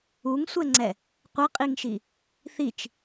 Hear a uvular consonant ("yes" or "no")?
yes